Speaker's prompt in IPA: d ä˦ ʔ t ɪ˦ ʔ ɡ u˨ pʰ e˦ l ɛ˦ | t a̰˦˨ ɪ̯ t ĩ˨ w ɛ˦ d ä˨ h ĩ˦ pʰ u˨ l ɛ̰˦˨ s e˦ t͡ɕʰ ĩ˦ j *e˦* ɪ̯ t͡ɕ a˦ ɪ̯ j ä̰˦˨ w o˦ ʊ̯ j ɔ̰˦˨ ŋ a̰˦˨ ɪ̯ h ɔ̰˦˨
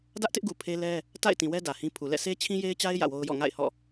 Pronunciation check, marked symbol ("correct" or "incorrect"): correct